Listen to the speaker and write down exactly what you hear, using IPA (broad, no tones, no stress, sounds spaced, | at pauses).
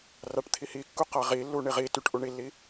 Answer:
r a ʈ t̪ʰ i h i kː u q a ʁ i lː u ɳ i ʁ i t y ʈ ʔ u ɳ i lː i